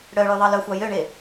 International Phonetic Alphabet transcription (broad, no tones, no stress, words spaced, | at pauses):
ɽœɭy ðˤɑlœxʷɑ jøɳe